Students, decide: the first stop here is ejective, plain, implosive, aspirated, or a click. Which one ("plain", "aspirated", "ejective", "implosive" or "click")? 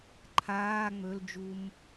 click